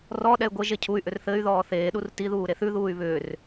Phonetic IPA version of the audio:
r ɔ ɗ ɛ y̯ ɡʷ ɘ ʒ e cʰ u y̯ ʔ ʏ r θ ɘ y̯ ð ɔː θ eː ɗ u r t i ð uː ɾ e θ ʉ ð uː y̯ β ʏː r

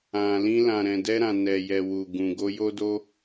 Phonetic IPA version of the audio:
ã˨ l ĩ˧ l ã˨ ɾ ɛ̃˨ d ɛ˧ ɾ ã˨ n ɛ˨ j ɛ˨ w u˨ ɡ ũ˨ ɡ o˧ j o˦ d o˦

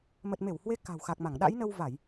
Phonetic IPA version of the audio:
m ə˨˩ t̚ m e˧˩ w h w e˨˦ k a̤˨˩ w x a˨˩ k̚ m a˧˩ ŋ ɗ a̰˧˥ j n ə˧ w v a˧˩˨ j

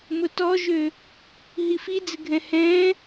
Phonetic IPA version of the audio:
m ʊ t ɔ ʒ ø | ɦ i f i d͡z ɪ ɡʱ ɛ̃ h ɛ̃

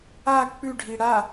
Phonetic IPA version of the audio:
a k͡p ʉ ɖʱ i ɽ a

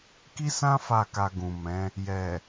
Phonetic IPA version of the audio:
k i˦ s ã˦ f a˦˨ k a˧ ɡ ũ˨ m ɛ̃˨˦ | j ɛ˨

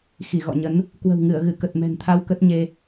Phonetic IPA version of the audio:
x i˧˩ ɣ ɔ̰˧˨ ɲ ə˨˦ n | k w ə̤˨˩ w ŋ ɨ˧˩ ə̯ ɣ ɨ˧˩ k ə˨˩ t̚ m ɛ̤˨˩ n t̪ʰ a˧ w k ə˦˥ t̚ ɲ e˧

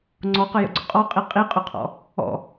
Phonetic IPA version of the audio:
ŋ͡ǀ ɔ q ə j ə̰ ɡ͡ǀ ʊ qʼ ɔ qʼ i qʼ i qʼ ʊ qʰ ɔ̰ | ɔ̰

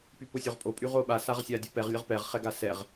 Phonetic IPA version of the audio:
p y p ʊ sʲ o ʁ pʼ o pʼ y ʁ o ɓ a s a ʁ sʲ a dʲ ə p ɛ ʁ lʲ ə ʁ p ɛ ʁ χ ɛ ɡ a s ɛ ʁ

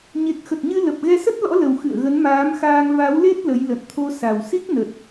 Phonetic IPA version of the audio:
ɲ e˨˩ k̚ x ə˨˩ t̚ ɲ ɨ˧ l ə˨˩ p̚ ɣ ɛ˧ s ə˦˥ t̚ l ɔ̰˧˥ l ə˨˩ w x ɨ̰˧˨ ə̯ ɣ ə˨˦ n m aː˨˦ m x aː˧ ŋ v a˨˦ w l e˦˥ t̚ l ə˨˦ j l ə̰˧˨ n t̪ʰ o˧ s a˨˩ w s i˦˥ k̚ n ə˨˩ t̚

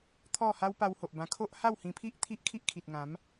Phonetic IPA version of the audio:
t̪ʰ ɔ˥˧ h a˦ w p a˧ w h o˨ ʔ b ã˧ kʰ o˦ ʔ h a˥˧ w h ĩ˧ pʰ i˦ ʔ t̪ʰ i˦ ʔ kʰ i˦ ʔ kʰ i˨ t̚ ŋ ã˨˦ m

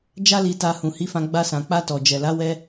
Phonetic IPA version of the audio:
d͡ʒ a˦ l i˧ t a˧ h ũ˨ h i˨˦ f ã˧ ɡ͡b a˧ s ã˨ k͡p a˧ t ɔ˨ d͡ʒ ɛ˨ l a˨˦ w ɛ˧

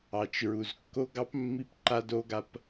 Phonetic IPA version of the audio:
ɑ˨ t͡ʃ ɹ u˨ z kː o˦ ɡ ɑ˦ p mː i˦ p ǃ a˦ d o˦ ɡ a˦ p

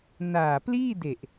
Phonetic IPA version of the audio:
n aː˨˩ p l iː˥˩ d e˨˩ ʔ

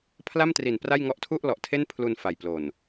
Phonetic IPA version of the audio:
pʰ l a˥˩ m t r i˨˩ n p r a˥˩ j ŋ ɔ˦˥ ʔ tʰ u˥˩ ʔ l ɔ˨˩ ʔ tʰ e˥˩ n pʰ l u˧ n f a˨˩ j p l o˨˩ n

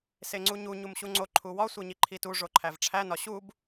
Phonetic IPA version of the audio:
s e ŋ͡ǀ u ɲ u ɲ u m ɕ u ŋ͡ǀ o ǃʰ u w ɒ sʷ e ɲ i ǃʰ i t u ʐ o ǃʰ æ v ʈ͡ʂʰ æ n ɒ ɕ u b

